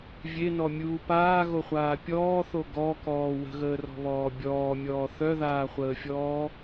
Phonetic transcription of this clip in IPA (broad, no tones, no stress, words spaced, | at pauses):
vʲenɔmʲuː paːɣoχʷaː pʲɔːθo ɡɔkɔː wə̤ɣəːrɔ̤βɔː bʲɔːmʲɔː θœðaːχʷəːfʲɔː